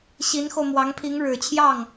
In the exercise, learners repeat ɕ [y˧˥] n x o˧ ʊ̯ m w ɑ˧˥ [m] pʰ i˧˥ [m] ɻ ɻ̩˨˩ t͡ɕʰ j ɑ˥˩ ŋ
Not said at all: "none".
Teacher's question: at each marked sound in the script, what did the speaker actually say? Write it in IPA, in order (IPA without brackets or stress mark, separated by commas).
i˧˥, ŋ, ŋ